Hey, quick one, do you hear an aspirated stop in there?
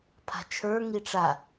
yes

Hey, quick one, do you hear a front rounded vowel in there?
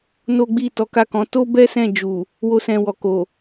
no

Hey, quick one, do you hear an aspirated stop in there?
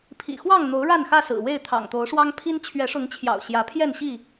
yes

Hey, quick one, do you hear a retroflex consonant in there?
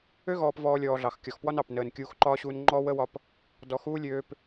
no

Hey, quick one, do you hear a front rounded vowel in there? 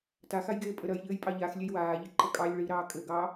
no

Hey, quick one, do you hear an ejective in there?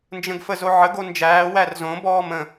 no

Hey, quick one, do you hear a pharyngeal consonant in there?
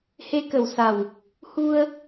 no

